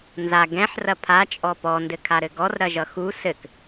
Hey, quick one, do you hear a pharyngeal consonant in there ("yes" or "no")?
yes